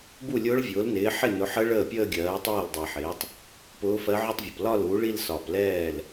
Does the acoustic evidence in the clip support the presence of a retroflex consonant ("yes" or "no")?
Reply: yes